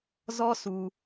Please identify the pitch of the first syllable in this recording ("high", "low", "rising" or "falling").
high